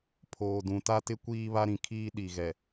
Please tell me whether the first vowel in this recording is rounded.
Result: yes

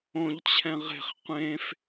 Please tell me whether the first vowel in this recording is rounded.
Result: yes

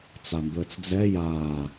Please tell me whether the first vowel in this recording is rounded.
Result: no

